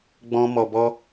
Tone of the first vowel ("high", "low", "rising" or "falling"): high